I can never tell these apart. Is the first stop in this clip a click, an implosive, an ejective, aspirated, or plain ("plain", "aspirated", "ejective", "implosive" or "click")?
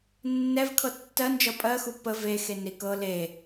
aspirated